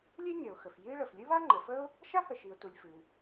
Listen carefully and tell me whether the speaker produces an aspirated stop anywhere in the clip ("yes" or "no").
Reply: no